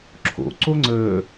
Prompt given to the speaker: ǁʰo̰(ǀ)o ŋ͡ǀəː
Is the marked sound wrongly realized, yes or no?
no